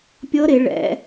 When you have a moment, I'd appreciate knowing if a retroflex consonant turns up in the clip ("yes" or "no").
yes